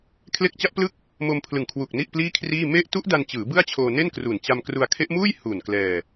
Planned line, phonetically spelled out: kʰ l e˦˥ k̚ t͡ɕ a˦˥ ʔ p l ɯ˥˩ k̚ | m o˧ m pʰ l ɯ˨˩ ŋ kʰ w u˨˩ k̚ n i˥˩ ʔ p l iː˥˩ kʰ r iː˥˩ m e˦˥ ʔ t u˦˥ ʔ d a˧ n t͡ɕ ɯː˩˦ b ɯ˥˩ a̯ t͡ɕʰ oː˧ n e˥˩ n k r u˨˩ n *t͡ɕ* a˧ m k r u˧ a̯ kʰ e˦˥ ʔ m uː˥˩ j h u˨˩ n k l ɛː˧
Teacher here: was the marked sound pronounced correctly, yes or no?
yes